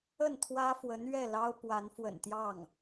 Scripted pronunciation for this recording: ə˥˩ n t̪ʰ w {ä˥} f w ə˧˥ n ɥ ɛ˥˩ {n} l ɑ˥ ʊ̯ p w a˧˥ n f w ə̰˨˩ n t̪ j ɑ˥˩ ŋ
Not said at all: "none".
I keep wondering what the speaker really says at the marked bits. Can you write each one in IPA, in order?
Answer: ä˥, none

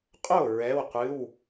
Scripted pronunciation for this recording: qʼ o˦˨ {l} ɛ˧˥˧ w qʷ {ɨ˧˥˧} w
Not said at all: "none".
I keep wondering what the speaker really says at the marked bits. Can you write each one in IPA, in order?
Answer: ɹ, ɨ˧˥˧

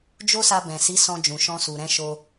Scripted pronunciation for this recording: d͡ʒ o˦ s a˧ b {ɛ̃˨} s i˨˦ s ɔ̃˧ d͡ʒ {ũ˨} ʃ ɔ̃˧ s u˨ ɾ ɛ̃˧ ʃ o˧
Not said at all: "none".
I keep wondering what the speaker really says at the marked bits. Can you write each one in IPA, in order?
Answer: ɛ̃˨, ũ˨

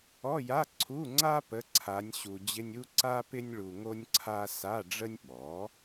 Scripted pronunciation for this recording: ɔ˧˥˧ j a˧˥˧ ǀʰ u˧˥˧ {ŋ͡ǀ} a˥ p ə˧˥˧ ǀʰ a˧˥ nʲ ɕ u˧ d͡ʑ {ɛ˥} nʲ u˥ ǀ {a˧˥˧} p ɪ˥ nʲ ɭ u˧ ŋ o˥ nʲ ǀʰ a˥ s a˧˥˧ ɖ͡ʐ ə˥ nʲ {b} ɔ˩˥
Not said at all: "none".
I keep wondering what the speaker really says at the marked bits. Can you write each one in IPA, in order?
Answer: ŋ͡ǀ, ɪ˥, a˥, ɓ

